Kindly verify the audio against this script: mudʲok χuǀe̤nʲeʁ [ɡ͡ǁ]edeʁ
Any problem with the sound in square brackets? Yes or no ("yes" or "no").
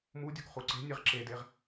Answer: yes